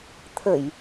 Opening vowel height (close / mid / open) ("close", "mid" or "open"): mid